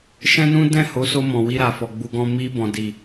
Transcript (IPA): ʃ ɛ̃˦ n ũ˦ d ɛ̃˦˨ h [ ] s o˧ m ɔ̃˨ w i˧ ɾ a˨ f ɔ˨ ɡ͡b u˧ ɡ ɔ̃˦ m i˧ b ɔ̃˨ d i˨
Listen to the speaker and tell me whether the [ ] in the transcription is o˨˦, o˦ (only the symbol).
o˨˦